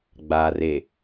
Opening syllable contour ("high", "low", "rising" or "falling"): low